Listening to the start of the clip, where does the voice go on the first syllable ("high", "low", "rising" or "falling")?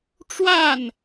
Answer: falling